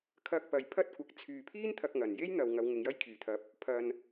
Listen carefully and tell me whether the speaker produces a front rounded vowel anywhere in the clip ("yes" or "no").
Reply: yes